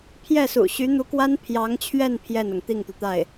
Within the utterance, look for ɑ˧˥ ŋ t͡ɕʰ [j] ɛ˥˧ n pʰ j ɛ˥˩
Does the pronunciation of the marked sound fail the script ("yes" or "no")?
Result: yes